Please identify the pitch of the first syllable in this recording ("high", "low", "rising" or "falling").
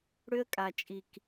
high